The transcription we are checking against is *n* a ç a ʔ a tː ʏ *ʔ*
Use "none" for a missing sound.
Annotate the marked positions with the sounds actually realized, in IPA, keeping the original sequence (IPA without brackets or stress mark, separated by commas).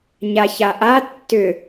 ɲ, none